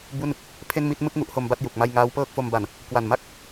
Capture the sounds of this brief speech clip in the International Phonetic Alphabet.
bu˥˩n | pʰe˥˩n mi˥˩t̚mɯ˦˥k̚ ŋu˦˥ʔho˧mba˥˩t̚ ju˨˩k̚ma˥˩j ŋaː˦˥wpɤː˥˩k̚fo˧mba˨˩n | kwa˨˩nma˥˩k̚

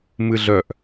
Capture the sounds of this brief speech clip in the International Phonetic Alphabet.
mɨɮœʔ

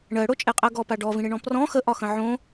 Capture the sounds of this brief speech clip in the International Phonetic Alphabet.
ɳɜɽot͡ʃʼeqʼɜ ɡɔpa ɖɔvĩɽeɳɔ̃ prɔ̃ xəʔɒxə̃ ʕõ

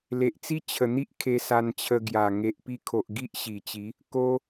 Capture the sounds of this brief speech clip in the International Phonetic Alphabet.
le˨ʔt͡si˦ t͡ɕʰə˨˩n̪i˦ʔ kʰe˧sa˧nt͡ɕʰə˧ ɡja˨˩ ŋe˨ʔpi˧kʰo˨ʔ ɡi˦ʔɕi˨˩t͡ɕi˨˦ | ko˧

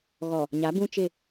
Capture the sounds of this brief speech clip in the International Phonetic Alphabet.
ɣɔ˨ | ɲa˨˦ bũ˦t͡ʃɪ˦˨

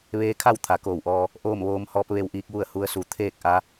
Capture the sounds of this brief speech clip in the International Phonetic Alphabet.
ʋeː˧˥kʰa˥˨w t̪ʰa˩˧koː˧˩wʔɔː˧ | ʔoː˥˨mʋoː˧˥m hɔː˧˥p̚ ʋe˧wʔiː˧k̚ ʋu˥˨ə̯hu˧˥ə̯su˩˧ t̪ʰeː˥˨k̚ʔa˧˥

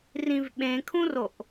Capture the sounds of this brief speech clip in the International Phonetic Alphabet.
rĩvɓẽkʰũroʔ

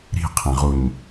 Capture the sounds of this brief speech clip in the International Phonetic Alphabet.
ɾi̤qʰẽʁuɲ

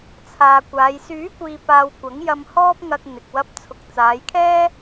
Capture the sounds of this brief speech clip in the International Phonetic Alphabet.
t͡sʰaː˨kʷaː˨˧j syː˨˥kʷiː˨paː˨w kʷɐ˨˥ŋjɐ˧mhɔː˥p̚ ŋɐ˧k̚ n̪ɪ˨k̚wɐ˧p̚ t͡sʰʊ˨k̚t͡saː˨˧jkʰɛː˥

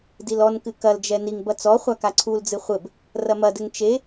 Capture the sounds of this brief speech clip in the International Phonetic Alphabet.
dilɔnkɨ kɐld͡ʒɛ niŋbɐ t͡sɔ χʷakaǀʰuld͡zɨ χʷɘb | rɐmɐdɘŋ t͡ʃe

